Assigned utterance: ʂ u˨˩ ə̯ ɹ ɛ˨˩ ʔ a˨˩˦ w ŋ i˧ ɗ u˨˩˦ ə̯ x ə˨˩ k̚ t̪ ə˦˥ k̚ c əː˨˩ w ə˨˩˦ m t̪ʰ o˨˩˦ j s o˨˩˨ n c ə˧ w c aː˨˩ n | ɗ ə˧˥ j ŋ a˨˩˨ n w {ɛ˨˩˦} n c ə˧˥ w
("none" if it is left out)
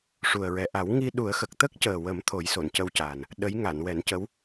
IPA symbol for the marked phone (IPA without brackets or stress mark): ɛ˨˩˦